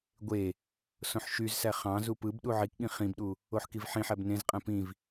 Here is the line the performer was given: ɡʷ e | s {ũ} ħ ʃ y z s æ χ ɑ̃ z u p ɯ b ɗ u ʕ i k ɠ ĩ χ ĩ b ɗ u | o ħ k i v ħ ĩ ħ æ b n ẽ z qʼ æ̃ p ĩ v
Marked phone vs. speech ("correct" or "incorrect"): incorrect